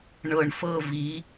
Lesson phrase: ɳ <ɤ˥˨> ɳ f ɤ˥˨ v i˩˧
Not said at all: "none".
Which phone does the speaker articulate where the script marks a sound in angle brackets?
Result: ɤ˨˩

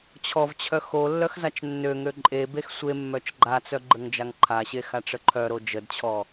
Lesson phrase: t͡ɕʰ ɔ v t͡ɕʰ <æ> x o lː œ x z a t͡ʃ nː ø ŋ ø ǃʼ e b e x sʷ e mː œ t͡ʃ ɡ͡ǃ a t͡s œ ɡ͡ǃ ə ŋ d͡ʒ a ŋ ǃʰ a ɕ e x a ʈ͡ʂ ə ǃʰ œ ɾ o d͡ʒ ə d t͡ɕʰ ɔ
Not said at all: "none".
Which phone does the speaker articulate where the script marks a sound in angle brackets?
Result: œ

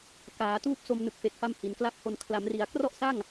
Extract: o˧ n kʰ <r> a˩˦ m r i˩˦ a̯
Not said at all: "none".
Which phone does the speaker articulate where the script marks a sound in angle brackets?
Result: l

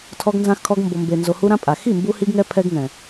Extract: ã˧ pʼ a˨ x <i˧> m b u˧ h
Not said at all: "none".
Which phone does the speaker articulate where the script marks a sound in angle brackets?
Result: i˦˨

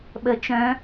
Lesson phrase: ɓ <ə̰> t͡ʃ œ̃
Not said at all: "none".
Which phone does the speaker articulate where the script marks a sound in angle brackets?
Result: ə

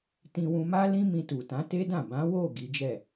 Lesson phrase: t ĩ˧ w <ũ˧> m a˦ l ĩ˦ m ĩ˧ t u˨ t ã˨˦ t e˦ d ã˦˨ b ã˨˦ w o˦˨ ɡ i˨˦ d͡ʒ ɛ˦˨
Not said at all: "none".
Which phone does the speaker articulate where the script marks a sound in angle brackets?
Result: ũ˧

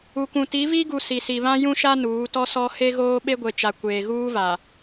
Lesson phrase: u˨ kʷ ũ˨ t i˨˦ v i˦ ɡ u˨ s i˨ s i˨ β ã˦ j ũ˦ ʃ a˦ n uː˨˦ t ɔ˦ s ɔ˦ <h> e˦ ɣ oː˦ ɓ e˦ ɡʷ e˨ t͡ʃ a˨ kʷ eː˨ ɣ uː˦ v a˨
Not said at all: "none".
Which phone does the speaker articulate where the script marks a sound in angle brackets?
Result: h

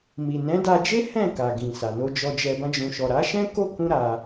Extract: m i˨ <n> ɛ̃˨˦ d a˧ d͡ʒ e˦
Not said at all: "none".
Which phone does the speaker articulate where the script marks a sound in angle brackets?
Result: n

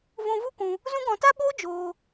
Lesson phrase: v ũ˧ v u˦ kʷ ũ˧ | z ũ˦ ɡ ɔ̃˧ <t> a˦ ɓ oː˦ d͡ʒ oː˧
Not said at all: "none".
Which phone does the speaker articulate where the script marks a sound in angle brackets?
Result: t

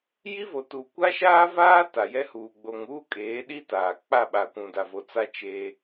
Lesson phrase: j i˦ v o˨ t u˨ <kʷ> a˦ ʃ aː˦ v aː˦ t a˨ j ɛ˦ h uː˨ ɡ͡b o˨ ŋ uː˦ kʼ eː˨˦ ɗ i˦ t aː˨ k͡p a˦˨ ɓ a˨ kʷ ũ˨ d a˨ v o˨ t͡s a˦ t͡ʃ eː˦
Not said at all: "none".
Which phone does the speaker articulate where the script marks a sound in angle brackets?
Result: kʷ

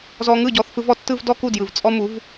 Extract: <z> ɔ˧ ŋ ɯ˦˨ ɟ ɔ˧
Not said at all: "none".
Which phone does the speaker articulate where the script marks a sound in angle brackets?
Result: z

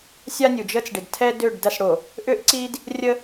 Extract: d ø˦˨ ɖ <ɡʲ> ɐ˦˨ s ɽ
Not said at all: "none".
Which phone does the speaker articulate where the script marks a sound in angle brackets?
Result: d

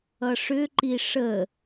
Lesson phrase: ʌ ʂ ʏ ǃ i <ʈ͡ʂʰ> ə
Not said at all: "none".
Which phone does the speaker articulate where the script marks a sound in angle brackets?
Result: ʂ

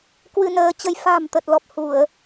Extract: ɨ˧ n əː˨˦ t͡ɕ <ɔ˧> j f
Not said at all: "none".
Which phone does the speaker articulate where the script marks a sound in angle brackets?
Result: ə˧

